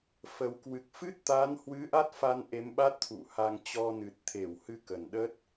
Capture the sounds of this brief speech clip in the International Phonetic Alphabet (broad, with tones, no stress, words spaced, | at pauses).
fə˨˩w kwɨ˨˩k̚fɨ˦˥t̚t̪a˨˦n hwɨ˨˦ ʔa˦˥t̚fa˧n ʔe˨˦mɓa˦˥t̚t̪ʰṵ˧˨ha˧ŋ t͡ɕɔ˧nɨ˨˩t̚t̪ʰe˧˩whɨ˧ kə˨˩nɗə˦˥t̚